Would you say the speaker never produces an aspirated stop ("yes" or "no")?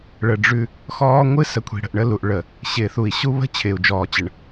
no